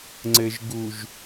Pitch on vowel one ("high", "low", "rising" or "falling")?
low